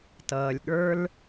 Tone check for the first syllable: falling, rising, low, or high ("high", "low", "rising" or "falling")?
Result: low